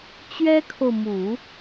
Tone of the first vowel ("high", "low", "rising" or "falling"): high